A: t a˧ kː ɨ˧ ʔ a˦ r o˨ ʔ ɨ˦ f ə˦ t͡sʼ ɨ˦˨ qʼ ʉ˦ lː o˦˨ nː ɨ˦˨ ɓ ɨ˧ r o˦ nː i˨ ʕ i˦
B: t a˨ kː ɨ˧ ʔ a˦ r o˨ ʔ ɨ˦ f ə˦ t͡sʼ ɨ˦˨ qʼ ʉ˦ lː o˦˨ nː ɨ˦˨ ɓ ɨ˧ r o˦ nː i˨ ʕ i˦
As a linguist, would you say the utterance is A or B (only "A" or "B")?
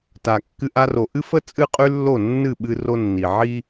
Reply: B